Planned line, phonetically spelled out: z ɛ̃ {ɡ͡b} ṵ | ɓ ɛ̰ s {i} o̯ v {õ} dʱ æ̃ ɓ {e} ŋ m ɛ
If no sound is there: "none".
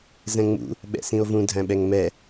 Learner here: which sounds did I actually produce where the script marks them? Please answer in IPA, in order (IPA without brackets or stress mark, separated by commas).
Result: ŋ͡m, ĩ, ũ, ɛ